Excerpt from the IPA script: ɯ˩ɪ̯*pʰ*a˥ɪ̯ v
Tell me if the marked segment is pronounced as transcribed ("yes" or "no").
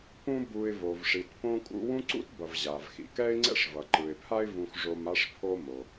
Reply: yes